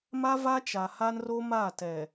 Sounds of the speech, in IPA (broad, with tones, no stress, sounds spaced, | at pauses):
m a˦ v a˦ t͡ʃ a˨ h a˦ n r o˦ m a˦˨ t ɛ˨